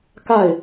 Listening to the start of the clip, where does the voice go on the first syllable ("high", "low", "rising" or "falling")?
falling